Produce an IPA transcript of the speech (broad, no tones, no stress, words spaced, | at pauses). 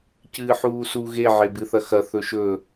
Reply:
cɨːħuːsu ɣe ʕebɨθɐxɐ θɵʃɵ